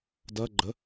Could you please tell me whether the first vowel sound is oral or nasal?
oral